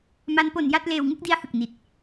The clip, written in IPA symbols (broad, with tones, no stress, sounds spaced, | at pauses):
m a˦˥ n p o˧ n j a˥˩ t̚ l eː˧ w ŋ ɯ˥˩ k̚ d i˦˥ a̯ h ɯ˨˩ k̚ n i˨˩ t̚